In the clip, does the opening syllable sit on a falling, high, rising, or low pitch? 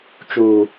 high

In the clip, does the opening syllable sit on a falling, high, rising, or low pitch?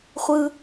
high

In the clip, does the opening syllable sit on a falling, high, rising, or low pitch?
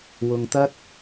low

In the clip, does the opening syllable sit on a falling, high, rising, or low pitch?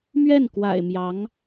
falling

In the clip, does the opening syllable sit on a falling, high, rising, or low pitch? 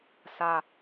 low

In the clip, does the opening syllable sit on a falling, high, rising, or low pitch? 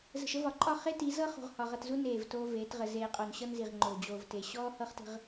low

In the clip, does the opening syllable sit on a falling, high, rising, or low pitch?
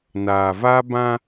low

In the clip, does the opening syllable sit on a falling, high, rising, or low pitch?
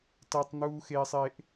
high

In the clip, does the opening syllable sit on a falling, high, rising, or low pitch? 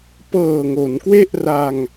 low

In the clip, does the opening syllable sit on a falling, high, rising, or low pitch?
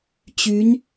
rising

